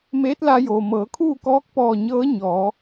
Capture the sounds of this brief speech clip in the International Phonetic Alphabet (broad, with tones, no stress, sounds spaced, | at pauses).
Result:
m eː˧˥ t̚ l a˧ j oː˩ m ɤː˩˧ kʰ uː˥˨ k ɔː˧˥ k̚ p ɔː˧˩ ɲ ɤː˧˥ ɲ ɔː˩˧